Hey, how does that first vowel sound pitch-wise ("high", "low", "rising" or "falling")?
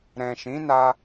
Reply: low